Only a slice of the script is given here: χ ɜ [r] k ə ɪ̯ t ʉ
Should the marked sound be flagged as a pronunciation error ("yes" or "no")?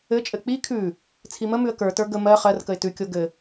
no